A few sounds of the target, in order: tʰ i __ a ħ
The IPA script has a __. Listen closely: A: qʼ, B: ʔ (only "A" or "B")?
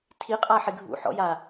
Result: A